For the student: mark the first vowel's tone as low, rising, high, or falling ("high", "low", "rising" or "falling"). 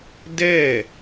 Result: falling